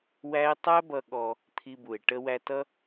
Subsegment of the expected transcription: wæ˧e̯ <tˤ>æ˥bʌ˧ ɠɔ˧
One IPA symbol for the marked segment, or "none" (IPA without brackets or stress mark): tˤ